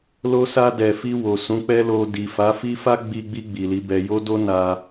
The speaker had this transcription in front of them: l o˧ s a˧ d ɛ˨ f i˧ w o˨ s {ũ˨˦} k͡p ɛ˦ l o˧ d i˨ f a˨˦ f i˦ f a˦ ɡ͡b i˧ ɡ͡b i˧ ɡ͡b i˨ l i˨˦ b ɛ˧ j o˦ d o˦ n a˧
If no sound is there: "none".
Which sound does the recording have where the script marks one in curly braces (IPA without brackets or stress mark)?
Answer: ũ˨˦